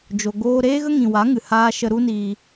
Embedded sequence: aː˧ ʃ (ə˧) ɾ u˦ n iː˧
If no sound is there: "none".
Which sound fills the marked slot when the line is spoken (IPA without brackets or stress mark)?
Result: ə˧